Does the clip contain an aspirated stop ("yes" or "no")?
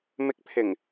yes